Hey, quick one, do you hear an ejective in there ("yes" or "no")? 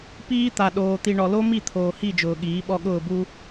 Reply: no